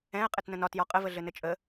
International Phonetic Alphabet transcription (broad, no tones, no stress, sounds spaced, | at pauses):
ɛ̃ ə̯ qʼ ɘ t n ə̃ n ɒ t j ɒ qʼ ə v ə ɮ ɘ n ɘ t͡ʃʼ ə